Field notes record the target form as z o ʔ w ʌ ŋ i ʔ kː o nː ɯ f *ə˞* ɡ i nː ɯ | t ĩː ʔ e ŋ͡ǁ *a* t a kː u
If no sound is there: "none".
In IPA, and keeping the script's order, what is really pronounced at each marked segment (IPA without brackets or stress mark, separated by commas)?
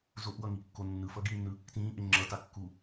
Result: ʌ, ʌ